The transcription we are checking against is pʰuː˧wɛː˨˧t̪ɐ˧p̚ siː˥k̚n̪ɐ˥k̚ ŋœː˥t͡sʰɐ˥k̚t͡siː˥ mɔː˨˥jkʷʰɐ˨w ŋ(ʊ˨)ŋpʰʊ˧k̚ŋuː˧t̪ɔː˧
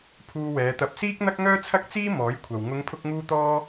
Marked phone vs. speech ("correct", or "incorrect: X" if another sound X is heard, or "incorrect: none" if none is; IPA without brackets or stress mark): incorrect: ʊ˨˧